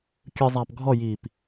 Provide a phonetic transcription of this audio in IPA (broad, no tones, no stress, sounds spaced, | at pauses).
kʲ ɯ zˤ aː p ɡʱ ɔ j iː p